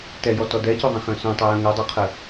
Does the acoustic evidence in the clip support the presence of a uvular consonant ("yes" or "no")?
yes